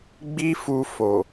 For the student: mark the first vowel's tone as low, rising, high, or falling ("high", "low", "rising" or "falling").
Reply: high